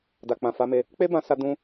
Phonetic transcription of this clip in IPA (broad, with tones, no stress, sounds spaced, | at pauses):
d a˨ k͡p ã˨ f a˨˦ m e˧ | k͡p e˦ b ã˧ s a˦ d ũ˧